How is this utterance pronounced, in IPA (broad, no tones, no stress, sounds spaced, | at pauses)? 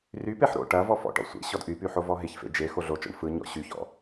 r y p e ħ ɾ o̰ ʈ ɐ v ɔ f ɔ̰ ʈ ɔ̰ sʷ ḛ ɕ ɔ d ʔ y p y ħ o v ɔ ɦ ɪ ç f ḛ d͡ʒ e x o ɮ o t͡ʃ ɔ̰ ɳ f ɯ ɲ ɔ̰ ɕ y ç ɔ̰